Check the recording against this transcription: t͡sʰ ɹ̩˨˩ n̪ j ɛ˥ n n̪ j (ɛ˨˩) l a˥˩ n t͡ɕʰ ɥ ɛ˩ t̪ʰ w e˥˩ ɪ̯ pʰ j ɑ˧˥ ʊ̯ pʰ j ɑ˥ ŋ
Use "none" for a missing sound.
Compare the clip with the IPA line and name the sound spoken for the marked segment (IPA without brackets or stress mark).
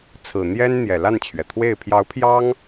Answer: ɛ˨˩